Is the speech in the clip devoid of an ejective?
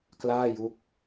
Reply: yes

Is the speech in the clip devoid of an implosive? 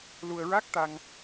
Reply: yes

